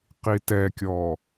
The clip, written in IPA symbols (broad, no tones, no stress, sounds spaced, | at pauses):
q i t ɛ kʲ ɔ